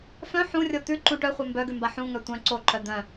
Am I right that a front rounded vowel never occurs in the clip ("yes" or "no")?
no